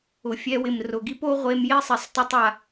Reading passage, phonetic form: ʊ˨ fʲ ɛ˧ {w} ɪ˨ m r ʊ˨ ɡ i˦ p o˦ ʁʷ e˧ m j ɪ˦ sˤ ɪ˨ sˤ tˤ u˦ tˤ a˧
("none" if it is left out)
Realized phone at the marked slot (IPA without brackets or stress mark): w